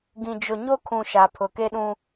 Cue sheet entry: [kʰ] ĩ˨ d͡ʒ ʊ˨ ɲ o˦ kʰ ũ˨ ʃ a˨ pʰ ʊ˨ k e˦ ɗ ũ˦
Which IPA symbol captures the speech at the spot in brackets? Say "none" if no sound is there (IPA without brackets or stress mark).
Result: ɡ